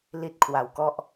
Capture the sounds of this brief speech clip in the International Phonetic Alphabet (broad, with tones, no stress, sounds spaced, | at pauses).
l i˥˩ t̚ kʰ w a˩˦ w k ɔ˦˥ ʔ